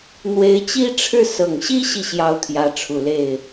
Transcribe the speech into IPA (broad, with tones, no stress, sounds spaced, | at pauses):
n̪ w e˧˥ ɪ̯ t͡ɕ i˥ ʈ͡ʂʰ ɻ̩˥˩ s ɤ˨˩ ŋ ɕ i˥ ɕ i˨ ɕ j ɑ˥ ʊ̯ t̪ʰ j ä˧˥ ʈ͡ʂʰ u˨˩ l e˥˩ ɪ̯